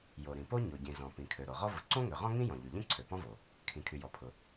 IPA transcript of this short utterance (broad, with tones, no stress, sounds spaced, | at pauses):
j o˩ ɾ ĩ˩ p o˥ ɲ o˩ ɟ ĩ˩ z ɔ̃˩ p ĩ˩ kʰ ø˩ ɾ o˩ ʁ ɔ˥ v ʊ˩ ǀ õ˥ ŋ ø˩ ʁ ɔ̃˥ ŋ ĩ˥ j ɔ̃˩ ʎ y˩ ʎ ĩ˥ ǀʰ ø˩ p ɔ̃˥ v o˩ | kʰ ĩ˩ kʰ y˩ j ɔ˩ pʰ ʊ˩